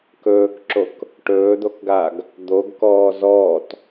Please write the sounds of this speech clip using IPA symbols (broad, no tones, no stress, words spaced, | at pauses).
kɵːkǁok | ʈɵːd̪okɡaːɡ | d̪oɡkɔː zɔːt